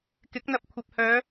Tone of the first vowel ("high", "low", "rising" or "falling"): rising